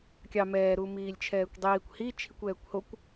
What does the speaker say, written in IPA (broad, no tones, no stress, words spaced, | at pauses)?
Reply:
kʲɑ mɛː ɾumiːlʲt͡ʃʰɛːkʷdˤiːkʷ hi t͡ʃʰikʷɛːkʷhokʷ